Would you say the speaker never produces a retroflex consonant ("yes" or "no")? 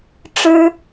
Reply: no